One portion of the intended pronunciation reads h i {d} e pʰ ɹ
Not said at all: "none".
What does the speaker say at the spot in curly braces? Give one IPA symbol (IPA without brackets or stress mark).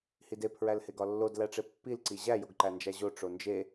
d